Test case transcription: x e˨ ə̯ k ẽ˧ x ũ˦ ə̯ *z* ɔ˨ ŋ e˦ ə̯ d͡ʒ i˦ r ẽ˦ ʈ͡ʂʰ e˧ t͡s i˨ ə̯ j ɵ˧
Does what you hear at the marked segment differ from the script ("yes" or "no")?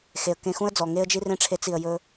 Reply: yes